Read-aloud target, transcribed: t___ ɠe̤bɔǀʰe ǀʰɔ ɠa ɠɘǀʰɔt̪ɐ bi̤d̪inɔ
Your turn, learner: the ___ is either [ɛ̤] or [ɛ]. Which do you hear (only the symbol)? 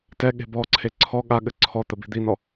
ɛ